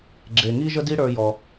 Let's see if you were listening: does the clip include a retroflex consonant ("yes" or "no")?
yes